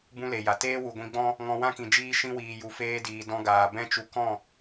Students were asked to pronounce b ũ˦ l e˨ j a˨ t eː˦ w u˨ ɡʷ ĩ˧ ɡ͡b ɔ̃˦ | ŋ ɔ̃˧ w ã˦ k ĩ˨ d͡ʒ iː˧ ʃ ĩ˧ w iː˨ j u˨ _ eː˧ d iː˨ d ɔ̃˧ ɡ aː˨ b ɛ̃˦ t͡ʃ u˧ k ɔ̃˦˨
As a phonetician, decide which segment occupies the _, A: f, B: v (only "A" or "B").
A